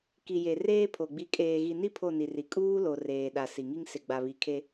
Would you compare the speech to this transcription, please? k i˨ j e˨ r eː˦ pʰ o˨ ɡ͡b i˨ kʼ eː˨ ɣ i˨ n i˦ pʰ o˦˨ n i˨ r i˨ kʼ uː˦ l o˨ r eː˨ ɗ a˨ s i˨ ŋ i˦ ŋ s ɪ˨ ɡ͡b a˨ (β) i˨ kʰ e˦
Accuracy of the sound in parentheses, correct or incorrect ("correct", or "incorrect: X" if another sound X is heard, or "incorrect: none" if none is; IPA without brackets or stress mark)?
correct